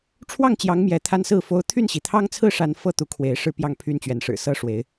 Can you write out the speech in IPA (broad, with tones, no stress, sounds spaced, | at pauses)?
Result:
ʈ͡ʂʰ w ɑ˥˨ ŋ t͡ɕ j ɑ˨˦ ŋ m j ɛ˨˦ t̪ʰ a˦ n s ɹ̩˥˨ f o˦ ʊ̯ t̪ʰ y˥˨ n ɕ i˩ t̪ʰ ɑ˦ ŋ t͡sʰ ɹ̩˥˨ ʂ a˦ n f ɤ˥˨ t̪ u˨˦ kʰ w e˨˦ ɪ̯ ʂ ɻ̩˥˨ p j ɑ˥˨ ŋ pʰ y˦ n t͡ɕ ɥ ɛ˨˦ n ʂ ɻ̩˨˩ s ɤ˦ ʂ w e˨˦ ɪ̯